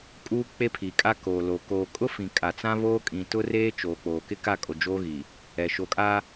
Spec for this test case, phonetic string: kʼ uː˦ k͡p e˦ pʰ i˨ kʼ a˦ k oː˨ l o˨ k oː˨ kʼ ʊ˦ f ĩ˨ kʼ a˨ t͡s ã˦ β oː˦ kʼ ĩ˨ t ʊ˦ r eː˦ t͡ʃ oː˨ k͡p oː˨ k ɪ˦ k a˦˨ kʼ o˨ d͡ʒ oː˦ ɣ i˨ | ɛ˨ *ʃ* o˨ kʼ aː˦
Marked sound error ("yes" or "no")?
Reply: no